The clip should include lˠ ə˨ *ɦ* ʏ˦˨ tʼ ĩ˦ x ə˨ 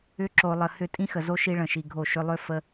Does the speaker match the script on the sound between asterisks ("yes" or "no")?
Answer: no